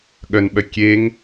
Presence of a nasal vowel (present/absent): absent